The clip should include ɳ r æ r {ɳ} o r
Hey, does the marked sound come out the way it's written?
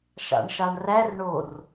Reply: yes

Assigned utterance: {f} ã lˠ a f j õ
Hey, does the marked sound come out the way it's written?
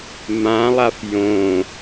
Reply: no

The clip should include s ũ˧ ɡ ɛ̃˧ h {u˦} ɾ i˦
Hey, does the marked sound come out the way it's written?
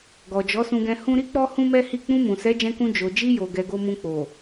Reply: no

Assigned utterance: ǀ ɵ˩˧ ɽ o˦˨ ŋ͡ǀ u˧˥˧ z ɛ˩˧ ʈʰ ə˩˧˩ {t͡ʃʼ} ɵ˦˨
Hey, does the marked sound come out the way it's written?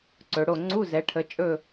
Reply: yes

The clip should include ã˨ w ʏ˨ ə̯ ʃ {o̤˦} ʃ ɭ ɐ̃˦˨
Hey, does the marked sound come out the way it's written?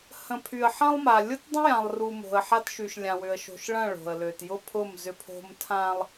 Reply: no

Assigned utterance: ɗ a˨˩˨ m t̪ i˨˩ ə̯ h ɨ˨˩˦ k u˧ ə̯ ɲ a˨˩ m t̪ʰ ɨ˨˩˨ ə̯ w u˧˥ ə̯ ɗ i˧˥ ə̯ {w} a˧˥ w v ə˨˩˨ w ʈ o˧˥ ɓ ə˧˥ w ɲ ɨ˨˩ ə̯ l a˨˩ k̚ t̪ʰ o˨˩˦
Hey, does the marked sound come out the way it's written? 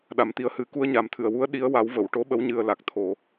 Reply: yes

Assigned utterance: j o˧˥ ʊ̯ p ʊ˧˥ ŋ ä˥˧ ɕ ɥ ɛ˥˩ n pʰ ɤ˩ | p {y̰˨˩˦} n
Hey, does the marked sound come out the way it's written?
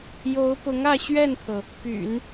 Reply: yes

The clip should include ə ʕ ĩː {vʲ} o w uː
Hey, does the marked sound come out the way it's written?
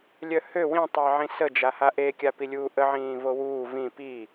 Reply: no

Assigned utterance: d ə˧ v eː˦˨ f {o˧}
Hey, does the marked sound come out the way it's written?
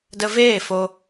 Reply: yes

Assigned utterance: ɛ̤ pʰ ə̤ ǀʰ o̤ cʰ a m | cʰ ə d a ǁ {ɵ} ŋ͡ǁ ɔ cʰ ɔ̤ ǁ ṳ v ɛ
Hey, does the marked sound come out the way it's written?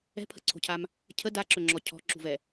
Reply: yes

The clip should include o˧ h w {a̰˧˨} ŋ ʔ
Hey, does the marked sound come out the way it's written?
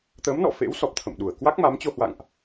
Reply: yes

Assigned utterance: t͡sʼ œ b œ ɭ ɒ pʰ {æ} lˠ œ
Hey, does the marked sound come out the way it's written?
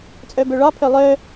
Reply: no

